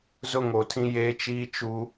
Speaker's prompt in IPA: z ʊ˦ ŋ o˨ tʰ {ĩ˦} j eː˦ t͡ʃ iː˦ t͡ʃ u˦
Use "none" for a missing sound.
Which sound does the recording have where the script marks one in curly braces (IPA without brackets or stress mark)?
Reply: ĩ˦